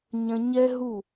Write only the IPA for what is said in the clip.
ɲ ɐ̃˧ ɲ ɛ˦ ɦ u˦˨

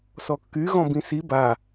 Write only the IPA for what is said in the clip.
s ɔ kː y ɣ ɔ̃ b ĩ s i b a

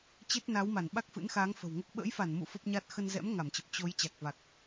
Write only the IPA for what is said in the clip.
t͡ɕ e˦˥ t̚ n a˨˦ w m a˧˩ n ɓ a˦˥ k̚ f ɨ̰˧˥ n x aː˨˦ ŋ f ə̤˨˩ w ŋ o˦˥ k̚ ɓ ə̰ː˧˥ j f a˧˩ n m ṵ˧˨ f ə˦˥ p̚ ɲ a˦˥ t̚ x ə˧ n z ɛ̰˧˥ m ŋ a˧˩ m t͡ɕ ə˨˩ p̚ t͡ɕ o˨˦ j t͡ɕ a˨˩ k̚ v a˨˩ k̚

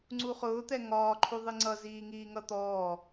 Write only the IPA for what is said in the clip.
ŋ͡ǀ u χ ʊː t̪ ɛ ŋ ɒː ǃʰ u ðˤ i ŋ͡ǀ ʌ z iː ŋ iː ŋ ʌ t̪ ɔː

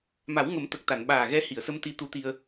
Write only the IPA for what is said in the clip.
m a˨˩˦ w ŋ ə˨˩˦ m t̪ ə˨˩ k̚ t̪ a˨˩˨ n ɓ aː˨˩ ɣ ɛ˧˥ h i˨˩˨ ə̯ s ə˧ m t̪ i˧˥ t̪ u˧˥ t̪ i˧ ə̯

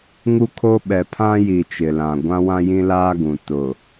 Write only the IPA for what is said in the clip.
ŋ u˦ kʰ o˦ ɓ ɛ˨ pʰ ã˦ j i˨ t͡ʃ ɪ˨ l ã˨ ɡʷ ã˦ w ã˦ j ĩ˦ l aː˦ ɡ ũ˨ t ʊ˨

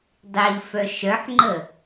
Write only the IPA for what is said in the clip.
dˤ i f œ ʃ œ ħ ŋ͡ǃ ə

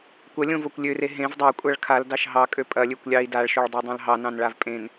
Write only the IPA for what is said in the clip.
kʷ ɐ lʲ õ v o kʷ lʲ ø r e ɦ ẽ v dˤ ɑ kʷʼ a ɭ kʰ a l d ɑ ʃ ɦ ɑ kʼ ø pʼ ɐ lʲ ø kʷ lʲ ɑ i̯ d a ɭ ʃ o ɭ dˤ a dˤ ɑ̃ l ɦ ɑ n ɑ̃ n ɭ a v pʼ ẽ n

